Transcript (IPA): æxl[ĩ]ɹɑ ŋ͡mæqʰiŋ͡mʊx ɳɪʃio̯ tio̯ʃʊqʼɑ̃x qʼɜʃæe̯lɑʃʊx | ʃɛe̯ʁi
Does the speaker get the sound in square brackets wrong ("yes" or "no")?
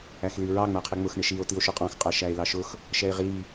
yes